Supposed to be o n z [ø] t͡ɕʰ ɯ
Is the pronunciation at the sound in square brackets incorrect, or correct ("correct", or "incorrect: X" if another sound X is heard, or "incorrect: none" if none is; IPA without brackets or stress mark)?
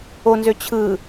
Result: correct